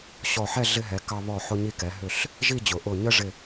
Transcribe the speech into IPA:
ɕ ɔ˧˩ ħ ɛ˥˧ ɮ ɪ˧ ɦ ɛ˩˧ k ɑ˧ β ɔ˧˩ ħ ʊ˧ ɲ i˧ k ɛ˩˧ ɦ ʏ˧˩ ɬ | ʒ i˥˧ d͡ʑ ʊ˩˧ ʔ ʊ˧˩ ɲ ə˥ ʐ ɪ˧˩

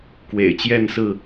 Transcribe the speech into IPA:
k w ḛ˨˩ ɪ̯ t͡ɕ j ɛ˥˨ n s ɹ̩˥˨

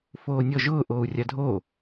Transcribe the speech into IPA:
f oː nʲ ɔ ʒ ʊː ʔ oː u̯ rʲ a dʱ oː

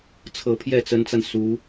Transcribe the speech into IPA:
t͡sʰ ɤ˧˥ pʰ j ɛ˥˩ t͡s ə˧˥ n t͡s a˧ n s u˧˥

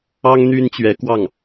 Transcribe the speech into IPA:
ɑ˥ ŋ n̪ y˥ n t͡ɕ ɥ ɛ˧˥ k w ɑ˥˩ ŋ

